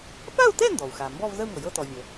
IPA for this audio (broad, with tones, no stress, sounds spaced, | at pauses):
p a˥˧ u̯ t ɛ˥˧ n d ɔ˩ u̯ x a˩ m b ɔ˥˧ v z ə˥˧ u̯ ŋ ɤ˩ j ɤ˥˧ t ɔ˩ vʲ ə˩